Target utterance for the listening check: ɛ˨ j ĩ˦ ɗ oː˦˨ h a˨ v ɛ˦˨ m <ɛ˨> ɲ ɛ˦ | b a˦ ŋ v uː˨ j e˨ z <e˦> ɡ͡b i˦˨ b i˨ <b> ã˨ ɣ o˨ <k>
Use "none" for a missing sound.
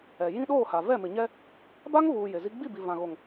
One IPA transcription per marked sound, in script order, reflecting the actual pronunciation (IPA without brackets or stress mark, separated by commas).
ɪ˨, i˦, v, ŋ